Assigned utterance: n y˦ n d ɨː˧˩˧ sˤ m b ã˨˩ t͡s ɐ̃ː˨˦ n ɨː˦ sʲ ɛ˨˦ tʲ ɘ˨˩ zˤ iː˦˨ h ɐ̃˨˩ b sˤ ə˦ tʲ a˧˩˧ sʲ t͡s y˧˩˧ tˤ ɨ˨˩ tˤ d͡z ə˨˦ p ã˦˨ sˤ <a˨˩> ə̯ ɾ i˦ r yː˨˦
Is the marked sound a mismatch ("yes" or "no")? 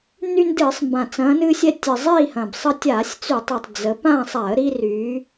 yes